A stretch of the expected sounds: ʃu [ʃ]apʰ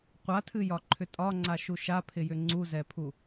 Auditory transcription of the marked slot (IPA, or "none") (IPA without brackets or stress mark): ʃ